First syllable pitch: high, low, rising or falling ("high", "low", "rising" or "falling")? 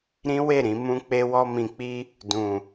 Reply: high